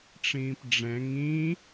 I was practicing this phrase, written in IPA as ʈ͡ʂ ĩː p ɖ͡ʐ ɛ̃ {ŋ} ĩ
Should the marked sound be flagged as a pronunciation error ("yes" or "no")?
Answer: no